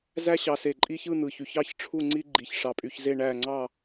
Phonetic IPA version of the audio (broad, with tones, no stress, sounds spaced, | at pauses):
z æ˥ ɕ ɑ˧ s e˧˩ ǃʼ i˥ ç ɯ˥˧ n̪ ɯ˧˩ ç y˧˩ ç ɑ˥˧ ç ʈ͡ʂʰ u˥˧ ŋ͡ǀ i˥ ɡ͡ǃ i˧˩ ç ʂ ɑ˧ pʼ y˧ ç z e˥˧ ɳ æ˥˧ ŋ͡ǀ ɑ˥˧